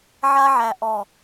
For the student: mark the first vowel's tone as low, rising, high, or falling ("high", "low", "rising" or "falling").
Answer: high